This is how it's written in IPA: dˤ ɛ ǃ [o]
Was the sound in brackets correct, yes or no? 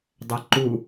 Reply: no